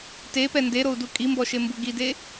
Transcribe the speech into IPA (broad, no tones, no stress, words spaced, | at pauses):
tepɛ ndeɾou̯du kʼimbɔʃembu ɡide